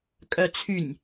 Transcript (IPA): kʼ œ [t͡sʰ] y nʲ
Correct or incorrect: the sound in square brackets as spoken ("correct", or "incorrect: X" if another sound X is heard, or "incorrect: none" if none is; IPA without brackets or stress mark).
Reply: correct